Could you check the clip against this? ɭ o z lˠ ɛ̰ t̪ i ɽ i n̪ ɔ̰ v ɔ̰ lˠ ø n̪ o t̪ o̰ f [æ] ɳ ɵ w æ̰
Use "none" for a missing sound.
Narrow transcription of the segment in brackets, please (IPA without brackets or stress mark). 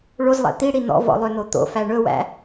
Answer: æ